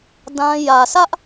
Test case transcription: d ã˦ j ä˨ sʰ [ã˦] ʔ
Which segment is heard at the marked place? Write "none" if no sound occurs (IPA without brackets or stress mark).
ä˦